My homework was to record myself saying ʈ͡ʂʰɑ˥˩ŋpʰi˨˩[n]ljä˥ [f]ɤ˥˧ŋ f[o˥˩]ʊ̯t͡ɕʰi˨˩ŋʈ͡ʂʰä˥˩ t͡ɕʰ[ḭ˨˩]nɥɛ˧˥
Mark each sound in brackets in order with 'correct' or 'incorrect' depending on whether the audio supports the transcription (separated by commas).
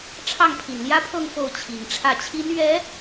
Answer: correct, incorrect, correct, incorrect